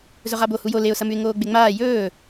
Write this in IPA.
zɵʁabo hujo leʊ̯sɐmʉɪ̯ ŋoːɡ͡beŋ͡maː jɵː

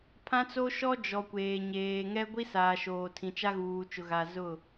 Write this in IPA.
pʰã˦t͡so˦ ʃɔ˦d͡ʒɔ˨ kʷeː˨ɲeː˨ ŋɛ˦ɡʷi˦saː˨ ʃoː˨tʰĩ˨ t͡ʃa˦ɣuː˨t͡ʃʊ˨ɣa˨ zʊ˦˨

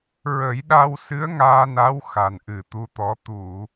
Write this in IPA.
ɹə˨˩˦jɗa˧wsɨ˧˥ə̯ ŋaː˧na˧˥w xa˨˩nʔɨ˨˩t̪u˧t̪ɔ˧˥ t̪u˨˩˨

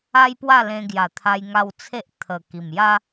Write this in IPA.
a˦jpwa˥˧lẽ˧ɡja˨˩ t̪ʰa˧jŋa˧wt͡sʰe˦ʔ t̪ʰə˨˩ ki˨˩mja˦

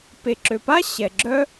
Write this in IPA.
pe˩ǁø˩pa˥ ɕɛ˩ɡ͡ǁœ˥

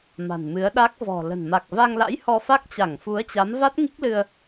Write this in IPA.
ma̤˨˩nmɨ˨˦ə̯ɗa˦˥k̚ vɔ̤˨˩lə̤˨˩n ma˨˩k̚va˧ŋla̰˧˥j hɔ˧fa˦˥k̚t͡ɕa˧˩ŋ fu˨˦ə̯t͡ɕa˨˦m va˦˥t̚ŋi˦˥k̚lɨ˧ə̯

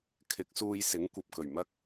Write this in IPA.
kʰɪ˨˥k̚suː˧jsɪ˨˥ŋ kʷɐ˨p̚kɵ˨˩ɥmɐ˥k̚

